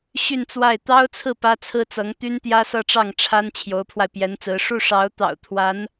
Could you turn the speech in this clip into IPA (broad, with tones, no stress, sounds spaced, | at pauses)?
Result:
ɕ y˥˧ n t͡s w a˥˩ ɪ̯ t̪ ɑ˥ ʊ̯ t͡sʰ ɹ̩˥˩ p ä˥ t͡sʰ ɹ̩˥ t͡s ɤ˧˥ ŋ t̪ y˥ n t̪ j ä˥ s ɤ˥˧ ʈ͡ʂ ɑ˥˩ ŋ ʈ͡ʂʰ a˥ n t͡ɕʰ j o˧˥ ʊ̯ pʰ w a˧ ɪ̯ p j ɛ˧˥ n t͡s ɹ̩˧˥ ʂ u˥˩ ʂ ɑ˧˥ ʊ̯ t̪ ɑ̰˨˩ ʊ̯ t̪ʰ w a˧˥ n